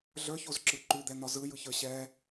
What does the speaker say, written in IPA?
ɮə˞çozǁɯ ǃʉd̪ɛn̪ɒ zɯjɯçə˞ ɕɛ

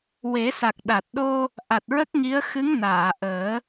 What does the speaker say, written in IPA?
we˨˩˦sa˨˩k̚ɗa˨˩t̚ ɗo˧ | ʔa˨˩t̚ɹə˦˥k̚ŋi˧˥ə̯ xɨ˧˥ŋnaː˨˩˨ʔəː˨˩˦

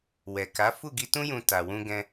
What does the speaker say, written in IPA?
wɛ˨ka˨˦ fu˦˨ɡi˧tũ˦jũ˧ ta˧wũ˦ɡɛ̃˦

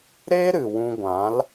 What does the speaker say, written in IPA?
ɾe˦ ɾɨ˨wũ˧ɡʷã˨˦l

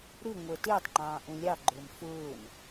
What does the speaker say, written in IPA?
ɾɪŋʷə˞ tɪːtˤŋ͡ǃɑ̃ː ʔũlʲɑɡ͡ǃʊːm fʊːn

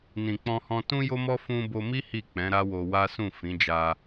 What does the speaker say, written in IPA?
nĩ˨ k͡pɔ̃˧hɔ̃˧ tũ˦jo˦mɔ˦ fũ˧bo˧mi˦ hi˦˨k͡pɛ̃˨˦ɾa˦wo˧ wa˦sũ˦˨ fĩ˨˦d͡ʒa˧

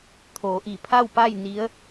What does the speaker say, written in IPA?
t̪ʰoː˩˧ʔi˧˩pʰa˥˨wpa˥˨j ni˧˥ə̯

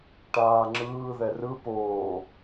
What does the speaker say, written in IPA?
ʈaːŋ͡ǁɯː ðɛrɯ poː

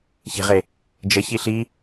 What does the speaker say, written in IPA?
çe̤ʁe | d͡ʒəçi ɬi

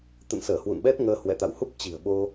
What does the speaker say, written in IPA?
t̪ə̰˧˨nsəː˧˩ hwṵ˧˨nɓɛ˦˥t̚ŋəː˧ hwɛ̰˧˨t̪a̰˧˨whu˦˥p̚ t͡ɕi̤˨˩ə̯ɓo˧

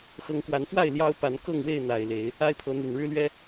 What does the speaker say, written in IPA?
xɤ˨˦ŋkwa˨˦nfwa˥˨ɪ̯ ljɑ˦ʊ̯pa˨˦n kɤ˥˨ŋwe˥˨ɪ̯n̪a˨˩ɪ̯ le˨˦ɪ̯ | a˦ɪ̯pʰɤ˨˦n̪y˨˩n ɻɻ̩˦lɥɛ˦

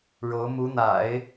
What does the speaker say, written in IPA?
ɻo˧˥ʊ̯mu˧˥n̪a̰˨˩˦ɪ̯

